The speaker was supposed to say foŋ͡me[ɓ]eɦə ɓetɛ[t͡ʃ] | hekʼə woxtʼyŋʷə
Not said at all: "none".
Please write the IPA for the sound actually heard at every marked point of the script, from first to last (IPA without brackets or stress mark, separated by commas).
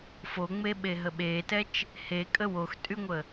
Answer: ɓ, t͡ʃ